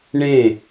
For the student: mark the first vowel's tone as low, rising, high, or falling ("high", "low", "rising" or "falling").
falling